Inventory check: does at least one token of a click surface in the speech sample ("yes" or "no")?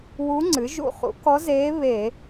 yes